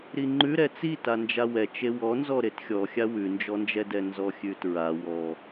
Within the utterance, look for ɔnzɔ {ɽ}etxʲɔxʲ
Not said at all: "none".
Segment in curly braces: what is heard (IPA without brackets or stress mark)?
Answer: ɾ